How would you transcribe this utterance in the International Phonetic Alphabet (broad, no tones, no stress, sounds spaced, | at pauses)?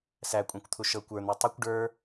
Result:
s æ kʷʼ æ̃ kʷ t̪ʰ u ʃ ɤ kʷ ə˞ n̪ æ tˤ u kʷ ɖ ə˞